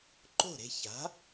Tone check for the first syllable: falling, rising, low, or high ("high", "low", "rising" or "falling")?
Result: falling